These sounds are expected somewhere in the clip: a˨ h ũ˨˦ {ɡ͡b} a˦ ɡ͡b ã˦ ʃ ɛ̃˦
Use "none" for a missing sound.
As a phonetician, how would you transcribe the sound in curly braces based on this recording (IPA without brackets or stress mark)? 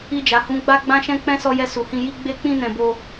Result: ɡ͡b